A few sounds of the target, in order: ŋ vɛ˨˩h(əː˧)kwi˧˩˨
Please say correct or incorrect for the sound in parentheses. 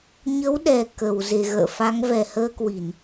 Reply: correct